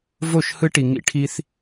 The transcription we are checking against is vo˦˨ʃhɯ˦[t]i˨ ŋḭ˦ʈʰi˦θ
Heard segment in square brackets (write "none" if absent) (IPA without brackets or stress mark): ʈ